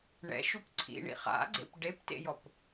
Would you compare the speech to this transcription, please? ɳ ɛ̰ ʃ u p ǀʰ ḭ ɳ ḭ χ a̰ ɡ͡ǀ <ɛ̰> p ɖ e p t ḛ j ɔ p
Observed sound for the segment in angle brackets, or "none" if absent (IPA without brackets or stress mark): ḛ